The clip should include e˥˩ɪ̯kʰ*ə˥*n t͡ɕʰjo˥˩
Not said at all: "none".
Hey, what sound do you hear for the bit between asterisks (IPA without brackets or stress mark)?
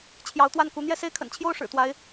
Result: ə̰˨˩